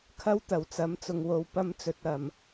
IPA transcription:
kʰɐ˥wt̪ɐ˨˩wt͡sɐ˨˥m t͡sʊ˨ŋwo˨˧w pɐ˥mt͡sɵ˧t̚ ɐ˨m

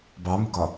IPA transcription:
bɑmʊɡɒ

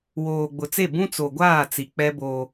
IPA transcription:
woː˨ɡ͡bʊ˨t͡se˦˨ bũ˦t͡so˨ɡʷaː˦˨ t͡si˨k͡pɛ˦boː˦

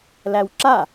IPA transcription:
læwǁa

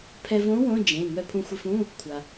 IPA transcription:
pʰɛ˧võ˧˥ wõ˧˥˧ d͡ʒẽ˩˧˩ ŋœ˧pʰũ˧xʷe˧fũ˧˥˧ | kʷʰa˩

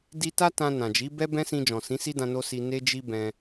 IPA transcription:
di˧ta˦ tã˧nã˨d͡ʒi˨˦ bɛ˦bɛ̃˦sĩ˧ d͡ʒɔ̃˨sĩ˨˦si˦dã˧ no˦si˧ ne˦d͡ʒi˦bɛ̃˧

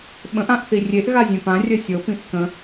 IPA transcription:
ɓə̃ʔ ãʔθirʲeʔ ɣazʲẽpã rʲəsʲɤ pĩʔkə̃

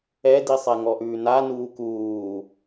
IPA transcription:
ɛdisˤɛŋɔ ʔʉːnanuː kuː

